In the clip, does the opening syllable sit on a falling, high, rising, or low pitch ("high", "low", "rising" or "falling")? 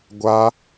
high